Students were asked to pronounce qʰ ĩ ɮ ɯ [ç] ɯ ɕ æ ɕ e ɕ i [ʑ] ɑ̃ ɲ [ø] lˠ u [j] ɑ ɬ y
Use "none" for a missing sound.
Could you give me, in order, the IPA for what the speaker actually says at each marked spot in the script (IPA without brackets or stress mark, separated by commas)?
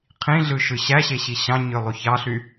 ʃ, ɕ, ø, ç